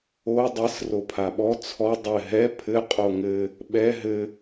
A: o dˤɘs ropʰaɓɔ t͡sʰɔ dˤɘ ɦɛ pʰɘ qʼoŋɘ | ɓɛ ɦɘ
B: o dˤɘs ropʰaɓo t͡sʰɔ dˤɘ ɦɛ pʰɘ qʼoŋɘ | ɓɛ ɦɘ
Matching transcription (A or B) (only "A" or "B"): A